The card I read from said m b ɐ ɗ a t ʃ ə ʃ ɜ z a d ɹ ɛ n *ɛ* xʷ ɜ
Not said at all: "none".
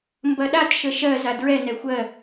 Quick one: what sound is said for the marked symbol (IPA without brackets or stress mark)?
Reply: ɛ